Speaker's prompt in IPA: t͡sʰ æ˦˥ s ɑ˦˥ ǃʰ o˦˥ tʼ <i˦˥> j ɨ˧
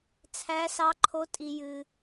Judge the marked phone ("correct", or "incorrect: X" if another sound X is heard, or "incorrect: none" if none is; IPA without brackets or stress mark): incorrect: i˧